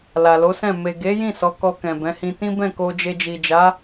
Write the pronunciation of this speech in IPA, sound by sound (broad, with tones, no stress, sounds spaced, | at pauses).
l a˨ l o˨˦ s ɛ̃˦˨ m e˨ ɡ e˨˦ j ĩ˦˨ s ɔ˨˦ k ɔ˧ k ɛ̃˨ b ɛ̃˨˦ h ĩ˧ t ĩ˦ b ɛ̃˦˨ k o˧ d͡ʒ e˧ d͡ʒ i˨ d͡ʒ a˨˦